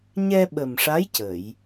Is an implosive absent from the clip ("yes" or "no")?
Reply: no